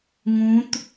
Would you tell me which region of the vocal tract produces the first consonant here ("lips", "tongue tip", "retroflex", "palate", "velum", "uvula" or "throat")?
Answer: velum